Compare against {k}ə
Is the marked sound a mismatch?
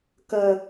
no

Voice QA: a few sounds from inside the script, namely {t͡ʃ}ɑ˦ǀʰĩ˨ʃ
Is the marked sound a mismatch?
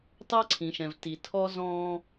yes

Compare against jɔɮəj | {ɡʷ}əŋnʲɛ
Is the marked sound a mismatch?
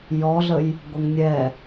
no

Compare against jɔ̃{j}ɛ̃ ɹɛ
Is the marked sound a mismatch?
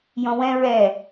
yes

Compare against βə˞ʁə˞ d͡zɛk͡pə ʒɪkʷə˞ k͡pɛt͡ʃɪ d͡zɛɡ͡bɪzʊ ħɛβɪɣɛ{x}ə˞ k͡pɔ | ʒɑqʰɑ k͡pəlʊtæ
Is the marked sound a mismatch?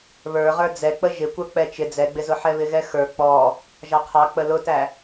no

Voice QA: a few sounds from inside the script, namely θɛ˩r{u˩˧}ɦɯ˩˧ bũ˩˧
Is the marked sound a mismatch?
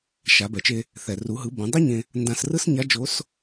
no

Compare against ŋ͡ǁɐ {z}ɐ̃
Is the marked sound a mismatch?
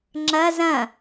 no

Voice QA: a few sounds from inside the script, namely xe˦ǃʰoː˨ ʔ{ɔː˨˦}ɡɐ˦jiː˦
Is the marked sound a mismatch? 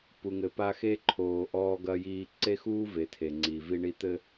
yes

